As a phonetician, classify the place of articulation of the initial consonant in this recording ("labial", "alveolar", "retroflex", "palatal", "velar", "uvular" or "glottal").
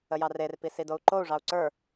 palatal